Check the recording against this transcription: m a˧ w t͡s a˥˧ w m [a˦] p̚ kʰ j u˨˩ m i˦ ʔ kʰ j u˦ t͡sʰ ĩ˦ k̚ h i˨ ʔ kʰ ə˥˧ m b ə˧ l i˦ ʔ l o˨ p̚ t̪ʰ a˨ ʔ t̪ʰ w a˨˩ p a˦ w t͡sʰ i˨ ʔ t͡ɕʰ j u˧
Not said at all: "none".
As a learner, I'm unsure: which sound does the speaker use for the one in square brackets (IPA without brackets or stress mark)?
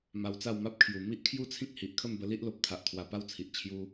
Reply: a˦